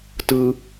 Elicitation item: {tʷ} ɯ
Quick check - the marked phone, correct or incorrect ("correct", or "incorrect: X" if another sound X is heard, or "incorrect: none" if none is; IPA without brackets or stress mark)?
incorrect: t